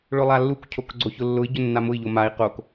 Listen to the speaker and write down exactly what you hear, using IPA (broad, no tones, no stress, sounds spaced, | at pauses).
ɭ ʊ lˠ a lː u k cʰ o k ɡ͡ǀ o ç ʊ lː ʊ i̯ ɟ ʊ nː a m ʊ i̯ ʎ o m a i̯ q o k